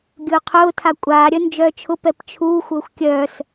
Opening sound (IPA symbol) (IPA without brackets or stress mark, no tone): ɡʲ